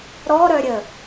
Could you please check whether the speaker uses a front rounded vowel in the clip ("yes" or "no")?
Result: yes